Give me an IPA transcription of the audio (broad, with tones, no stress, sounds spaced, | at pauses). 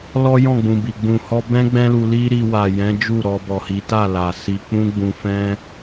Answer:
l ɔ˦ j ɔ̃˦˨ ɡ͡b ũ˨ b i˨ ɡ͡b ũ˨ h ɔ˧ b ɛ̃˦ ɡ͡b ɛ̃˦ l u˧ l i˦ ɾ i˧ w a˨ j ɛ̃˨˦ d͡ʒ u˦˨ ɾ ɔ˧ b ɔ˨ h i˨˦ t a˦˨ l a˨ s i˧ k͡p ũ˦ ɡ͡b ũ˧ f ɛ̃˦